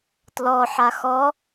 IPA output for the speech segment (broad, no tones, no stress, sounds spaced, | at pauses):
t l ɔ ħ a x ɔ